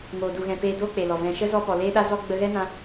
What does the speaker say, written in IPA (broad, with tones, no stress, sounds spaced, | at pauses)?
ŋ oː˨ d u˨ ɣ ɛ̃˨ p eː˧ d oː˦ k͡p e˨ l ɔ˨ v ɛ̃˨ ʃ ə˦ z ɔ˧ p ɔ˨ l eː˦ ɗ a˦ z ɔ˦ ɡ͡b ə˧ ɣ ɛ˦ n ã˧